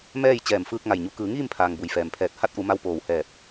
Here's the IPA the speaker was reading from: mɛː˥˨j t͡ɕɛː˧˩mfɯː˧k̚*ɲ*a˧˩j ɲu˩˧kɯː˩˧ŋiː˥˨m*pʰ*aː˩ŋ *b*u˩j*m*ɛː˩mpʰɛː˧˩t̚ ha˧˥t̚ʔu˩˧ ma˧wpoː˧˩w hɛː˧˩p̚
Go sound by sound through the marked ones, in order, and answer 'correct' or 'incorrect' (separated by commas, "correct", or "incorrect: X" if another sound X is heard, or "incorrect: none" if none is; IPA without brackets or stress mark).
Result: incorrect: ŋ, correct, correct, incorrect: f